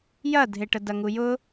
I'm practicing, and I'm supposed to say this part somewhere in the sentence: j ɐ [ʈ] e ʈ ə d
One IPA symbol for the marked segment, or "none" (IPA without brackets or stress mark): dʱ